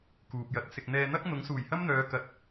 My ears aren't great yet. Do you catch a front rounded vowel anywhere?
yes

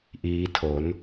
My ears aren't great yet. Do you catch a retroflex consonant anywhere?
no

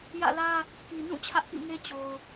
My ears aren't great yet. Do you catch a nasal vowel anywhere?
yes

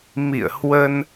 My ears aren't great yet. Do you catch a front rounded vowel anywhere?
no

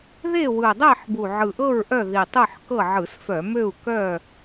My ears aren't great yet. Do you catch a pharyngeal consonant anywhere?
yes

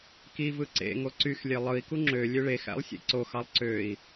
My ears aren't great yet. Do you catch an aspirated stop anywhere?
no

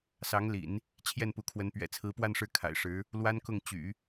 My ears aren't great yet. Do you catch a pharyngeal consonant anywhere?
no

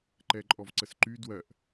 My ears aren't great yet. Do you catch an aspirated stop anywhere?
no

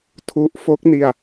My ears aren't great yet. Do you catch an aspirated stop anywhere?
yes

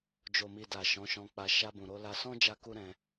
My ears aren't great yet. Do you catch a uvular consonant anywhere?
no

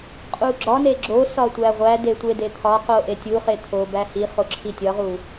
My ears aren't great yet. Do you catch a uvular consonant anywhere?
yes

